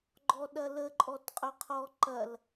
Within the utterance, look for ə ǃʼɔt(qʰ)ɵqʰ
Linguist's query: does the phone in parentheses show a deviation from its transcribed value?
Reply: yes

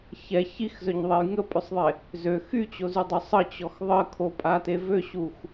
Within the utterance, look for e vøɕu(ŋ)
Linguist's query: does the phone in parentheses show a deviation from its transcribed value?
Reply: yes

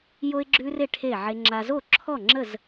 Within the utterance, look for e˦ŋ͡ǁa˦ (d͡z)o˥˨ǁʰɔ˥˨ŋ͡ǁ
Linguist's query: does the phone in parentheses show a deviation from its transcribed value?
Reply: yes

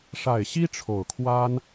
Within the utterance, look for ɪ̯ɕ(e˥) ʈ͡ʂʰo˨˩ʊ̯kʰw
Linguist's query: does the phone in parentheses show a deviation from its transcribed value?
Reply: yes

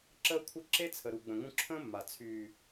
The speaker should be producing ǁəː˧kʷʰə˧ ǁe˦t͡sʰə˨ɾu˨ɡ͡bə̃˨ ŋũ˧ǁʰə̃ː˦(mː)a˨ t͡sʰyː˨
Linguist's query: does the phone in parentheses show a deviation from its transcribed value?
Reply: no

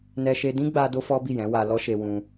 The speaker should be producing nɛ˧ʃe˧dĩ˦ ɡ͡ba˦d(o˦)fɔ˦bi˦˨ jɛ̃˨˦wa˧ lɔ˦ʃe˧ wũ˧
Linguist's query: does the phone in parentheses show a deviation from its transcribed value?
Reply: no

